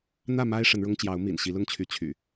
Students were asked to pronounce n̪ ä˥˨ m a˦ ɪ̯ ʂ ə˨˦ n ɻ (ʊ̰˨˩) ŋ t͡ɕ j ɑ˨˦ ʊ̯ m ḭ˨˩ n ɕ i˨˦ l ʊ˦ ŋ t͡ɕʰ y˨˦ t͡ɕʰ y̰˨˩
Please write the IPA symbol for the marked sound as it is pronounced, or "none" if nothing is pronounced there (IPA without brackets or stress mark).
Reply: ʊ˦